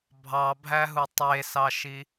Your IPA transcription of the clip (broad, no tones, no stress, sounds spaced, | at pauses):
bʱ ɑ bʱ æ ɦ u tˤ e s ɑ ʃ i